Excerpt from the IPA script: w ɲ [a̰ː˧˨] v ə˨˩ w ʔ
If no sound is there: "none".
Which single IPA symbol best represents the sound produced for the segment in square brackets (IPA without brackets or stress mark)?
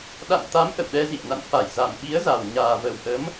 aː˨˩